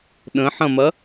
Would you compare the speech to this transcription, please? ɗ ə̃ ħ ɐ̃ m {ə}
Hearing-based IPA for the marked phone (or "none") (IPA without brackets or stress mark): ɐ